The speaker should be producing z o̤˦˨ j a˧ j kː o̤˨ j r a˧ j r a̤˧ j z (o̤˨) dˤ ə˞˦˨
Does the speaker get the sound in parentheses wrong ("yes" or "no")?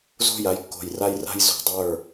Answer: no